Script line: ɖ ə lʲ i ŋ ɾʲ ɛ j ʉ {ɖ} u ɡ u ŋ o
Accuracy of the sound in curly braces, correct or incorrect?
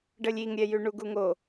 incorrect